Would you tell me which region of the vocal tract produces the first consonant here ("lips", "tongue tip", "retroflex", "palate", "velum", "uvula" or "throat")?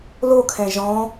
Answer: tongue tip